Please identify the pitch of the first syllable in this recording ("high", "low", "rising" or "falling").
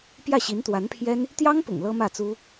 falling